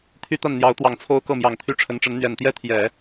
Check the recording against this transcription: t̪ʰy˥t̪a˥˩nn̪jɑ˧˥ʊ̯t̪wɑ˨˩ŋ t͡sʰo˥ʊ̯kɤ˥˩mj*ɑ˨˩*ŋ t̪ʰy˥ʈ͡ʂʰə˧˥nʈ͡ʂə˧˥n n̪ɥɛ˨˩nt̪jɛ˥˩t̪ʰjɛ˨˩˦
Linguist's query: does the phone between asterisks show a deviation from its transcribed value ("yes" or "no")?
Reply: no